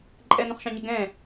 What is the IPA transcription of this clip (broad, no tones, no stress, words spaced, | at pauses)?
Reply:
ǃʼɛnũχʃɑ̃ɲə ɡɛ̃